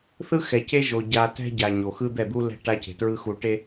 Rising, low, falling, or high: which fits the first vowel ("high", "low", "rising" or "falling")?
high